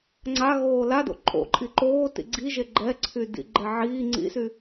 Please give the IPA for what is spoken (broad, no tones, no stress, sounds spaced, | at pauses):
ŋ͡ǀ a ɣ oː l a d o̰ ǃʼ o̰ ǃʼ i ǃ oː t ḭ ɡ͡ǀ i ʒ e ɡ͡ǃ ɛ ǀʰ y d ḭ ɡ͡ǃ ɛ ʕ iː ŋ͡ǀ ḭ s y